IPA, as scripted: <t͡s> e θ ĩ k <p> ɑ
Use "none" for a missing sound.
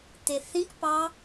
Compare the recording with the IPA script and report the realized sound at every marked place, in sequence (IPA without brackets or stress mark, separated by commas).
t̪, p